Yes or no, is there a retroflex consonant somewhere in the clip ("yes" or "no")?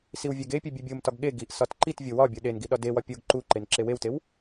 no